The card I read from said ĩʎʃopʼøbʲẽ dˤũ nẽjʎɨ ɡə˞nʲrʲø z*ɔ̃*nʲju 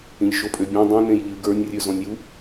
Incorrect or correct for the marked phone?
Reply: correct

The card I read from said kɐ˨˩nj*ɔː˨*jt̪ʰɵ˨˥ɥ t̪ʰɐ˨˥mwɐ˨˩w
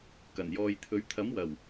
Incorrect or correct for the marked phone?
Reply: correct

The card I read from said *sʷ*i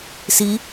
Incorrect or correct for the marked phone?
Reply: incorrect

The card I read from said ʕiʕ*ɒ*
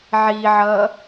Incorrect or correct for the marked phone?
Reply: incorrect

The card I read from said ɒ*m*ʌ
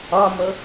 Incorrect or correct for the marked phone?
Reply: correct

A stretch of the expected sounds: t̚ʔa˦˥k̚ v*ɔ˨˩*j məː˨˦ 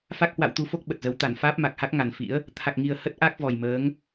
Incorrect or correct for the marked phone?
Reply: correct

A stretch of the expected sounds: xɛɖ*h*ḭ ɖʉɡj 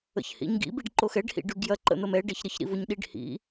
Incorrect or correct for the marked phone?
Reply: correct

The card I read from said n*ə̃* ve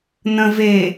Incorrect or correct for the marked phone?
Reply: correct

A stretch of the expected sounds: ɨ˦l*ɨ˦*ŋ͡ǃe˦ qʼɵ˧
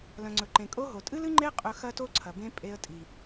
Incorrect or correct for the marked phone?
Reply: correct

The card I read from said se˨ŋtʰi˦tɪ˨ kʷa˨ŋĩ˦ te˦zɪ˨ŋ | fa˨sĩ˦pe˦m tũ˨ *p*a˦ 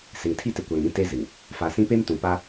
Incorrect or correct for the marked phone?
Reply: correct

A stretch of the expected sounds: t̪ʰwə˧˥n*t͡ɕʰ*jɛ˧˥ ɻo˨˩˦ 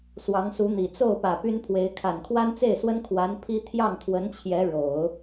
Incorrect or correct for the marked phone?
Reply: correct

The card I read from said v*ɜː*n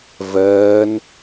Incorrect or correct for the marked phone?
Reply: correct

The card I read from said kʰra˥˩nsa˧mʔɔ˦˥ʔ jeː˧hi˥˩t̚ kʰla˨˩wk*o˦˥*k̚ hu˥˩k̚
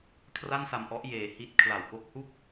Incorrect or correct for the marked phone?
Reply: correct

